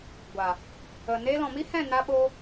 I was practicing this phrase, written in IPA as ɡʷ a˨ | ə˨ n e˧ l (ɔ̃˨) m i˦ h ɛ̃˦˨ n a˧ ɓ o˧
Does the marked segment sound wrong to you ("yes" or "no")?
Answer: no